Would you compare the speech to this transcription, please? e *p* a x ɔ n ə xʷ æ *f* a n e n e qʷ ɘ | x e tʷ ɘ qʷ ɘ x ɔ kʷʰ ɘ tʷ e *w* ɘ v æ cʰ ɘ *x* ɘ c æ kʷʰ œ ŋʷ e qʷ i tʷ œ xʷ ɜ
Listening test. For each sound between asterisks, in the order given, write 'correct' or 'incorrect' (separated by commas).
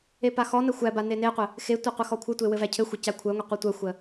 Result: correct, incorrect, correct, incorrect